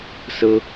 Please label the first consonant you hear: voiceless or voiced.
voiceless